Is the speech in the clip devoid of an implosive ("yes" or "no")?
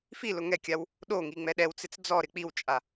no